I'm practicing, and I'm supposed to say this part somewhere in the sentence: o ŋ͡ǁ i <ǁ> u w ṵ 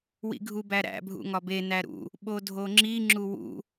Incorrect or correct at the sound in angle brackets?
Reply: incorrect: ŋ͡ǁ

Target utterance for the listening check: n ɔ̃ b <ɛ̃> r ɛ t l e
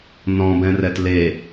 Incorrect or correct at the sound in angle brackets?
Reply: correct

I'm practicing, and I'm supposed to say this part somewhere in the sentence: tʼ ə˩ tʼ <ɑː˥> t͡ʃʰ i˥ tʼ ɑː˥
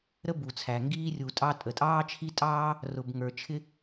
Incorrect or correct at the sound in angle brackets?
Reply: correct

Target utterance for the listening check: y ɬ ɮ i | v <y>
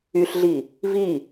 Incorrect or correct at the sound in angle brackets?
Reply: incorrect: i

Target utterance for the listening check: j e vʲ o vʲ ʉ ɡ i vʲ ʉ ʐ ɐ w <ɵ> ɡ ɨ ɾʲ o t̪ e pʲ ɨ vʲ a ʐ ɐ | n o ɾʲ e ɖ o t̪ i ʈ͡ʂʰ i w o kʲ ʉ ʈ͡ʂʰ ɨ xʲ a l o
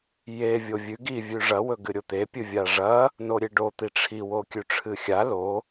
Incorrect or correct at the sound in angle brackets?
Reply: correct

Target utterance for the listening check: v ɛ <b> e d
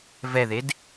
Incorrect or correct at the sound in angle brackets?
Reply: incorrect: ð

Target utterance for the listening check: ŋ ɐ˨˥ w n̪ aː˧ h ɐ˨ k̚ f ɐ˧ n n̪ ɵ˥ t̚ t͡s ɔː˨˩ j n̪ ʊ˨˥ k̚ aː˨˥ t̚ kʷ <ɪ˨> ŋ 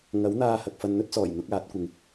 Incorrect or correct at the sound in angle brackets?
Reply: correct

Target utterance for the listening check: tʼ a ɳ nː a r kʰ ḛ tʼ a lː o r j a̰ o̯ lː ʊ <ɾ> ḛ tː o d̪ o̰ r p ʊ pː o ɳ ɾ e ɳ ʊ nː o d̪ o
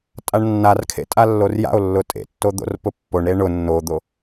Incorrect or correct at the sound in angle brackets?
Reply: incorrect: tʼ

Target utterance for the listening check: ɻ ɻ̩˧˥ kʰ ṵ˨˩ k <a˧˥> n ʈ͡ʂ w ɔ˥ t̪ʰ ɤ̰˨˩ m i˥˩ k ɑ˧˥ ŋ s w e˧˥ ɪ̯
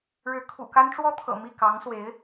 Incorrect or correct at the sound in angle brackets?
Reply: incorrect: a˥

